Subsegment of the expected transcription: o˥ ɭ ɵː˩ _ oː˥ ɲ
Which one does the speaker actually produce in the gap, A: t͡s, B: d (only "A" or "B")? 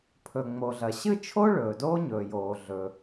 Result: B